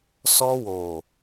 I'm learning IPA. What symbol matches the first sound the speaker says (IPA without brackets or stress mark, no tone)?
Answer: s